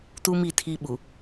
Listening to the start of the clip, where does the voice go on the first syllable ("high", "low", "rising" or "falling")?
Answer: high